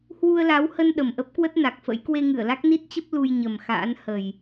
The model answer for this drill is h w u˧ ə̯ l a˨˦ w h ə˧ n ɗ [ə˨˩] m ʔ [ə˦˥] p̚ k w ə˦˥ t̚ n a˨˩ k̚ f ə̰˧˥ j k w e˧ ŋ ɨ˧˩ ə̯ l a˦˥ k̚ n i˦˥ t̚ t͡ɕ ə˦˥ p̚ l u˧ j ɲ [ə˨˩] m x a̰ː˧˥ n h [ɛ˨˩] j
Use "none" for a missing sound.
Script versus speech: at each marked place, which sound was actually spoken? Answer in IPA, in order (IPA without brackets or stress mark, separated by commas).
ə˨˩, ə˦˥, ə˨˩, ə˨˩